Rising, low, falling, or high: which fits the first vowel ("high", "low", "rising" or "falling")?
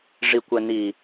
low